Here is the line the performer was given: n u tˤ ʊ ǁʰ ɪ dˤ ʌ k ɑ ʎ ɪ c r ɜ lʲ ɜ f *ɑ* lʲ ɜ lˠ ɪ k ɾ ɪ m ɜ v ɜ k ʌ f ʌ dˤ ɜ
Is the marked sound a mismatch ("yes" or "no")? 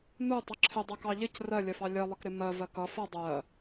no